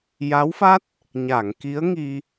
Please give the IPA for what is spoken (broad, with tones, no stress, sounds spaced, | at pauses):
j a˧˥ w f a˦˥ t̚ | ɲ a˨˩˨ ŋ k i˧˥ ə̯ ŋ i˧